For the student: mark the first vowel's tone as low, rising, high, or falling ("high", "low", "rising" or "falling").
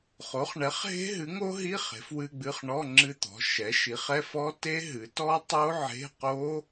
rising